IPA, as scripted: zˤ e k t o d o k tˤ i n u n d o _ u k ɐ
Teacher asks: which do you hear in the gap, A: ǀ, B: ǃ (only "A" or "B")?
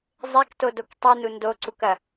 A